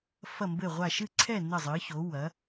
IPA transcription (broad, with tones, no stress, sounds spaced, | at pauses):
f ɐ˥˨ m b ɘ˥˨ ʁʷ a˥˨ ʃ ɨ˥˨ ǀʰ ɛ˥˨ n ɘ˥˨ zˤ ɨː˨˥ ç oː˨˥ w ɐ˨˥